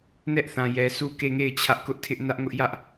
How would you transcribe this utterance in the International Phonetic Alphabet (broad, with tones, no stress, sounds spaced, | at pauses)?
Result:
n ɛ˦ ʔ θ ã˨ j ɛ˨ s u˦˨ k e˦˨ ŋ e˦˨ ɪ̯ t͡ɕʰ ä˦ ʔ k ʊ˦ ʔ tʰ ɪ˦ ʔ n ä˦ ʔ ŋ ʊ˦ ʔ j ä˦ ʔ